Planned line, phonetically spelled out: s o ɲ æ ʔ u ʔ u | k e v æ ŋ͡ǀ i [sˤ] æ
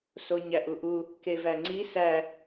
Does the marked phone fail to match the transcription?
yes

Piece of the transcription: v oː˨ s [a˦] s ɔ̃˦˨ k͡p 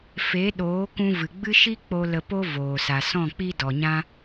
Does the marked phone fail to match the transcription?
yes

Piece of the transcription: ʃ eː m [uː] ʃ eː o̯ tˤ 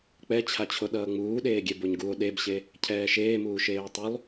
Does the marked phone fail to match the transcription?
no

